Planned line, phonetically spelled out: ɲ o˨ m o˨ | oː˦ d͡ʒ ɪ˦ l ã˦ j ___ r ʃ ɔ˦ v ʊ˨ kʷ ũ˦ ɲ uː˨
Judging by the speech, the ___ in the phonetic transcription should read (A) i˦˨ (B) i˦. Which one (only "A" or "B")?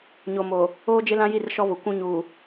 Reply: A